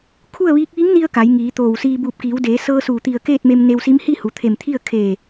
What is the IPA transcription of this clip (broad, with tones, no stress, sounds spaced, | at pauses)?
kʰ u˥˨ ə̯ ʋ iː˧˥ k̚ ʋ i˧˥ ŋ n i˧ ə̯ k a˩˧ j ŋ iː˩˧ t̪ oː˧˩ w s iː˧ b uː˧˩ p̚ k iː˩˧ w d eː˩˧ s ɤː˧ s uː˧˩ t̪ i˧˩ ə̯ k eː˥˨ t̚ m e˧ m n e˧ w s i˧˥ m h i˥˨ h u˩˧ t̪ʰ e˧˩ m t̪ʰ i˥˨ ə̯ kʰ e˧˩